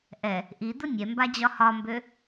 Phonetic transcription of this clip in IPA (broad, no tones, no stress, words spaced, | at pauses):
ʔɛ | ʔid̪ʊ nʲɛmbad͡ʑɒ hɒmbø